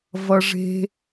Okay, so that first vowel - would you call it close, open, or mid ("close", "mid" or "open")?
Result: mid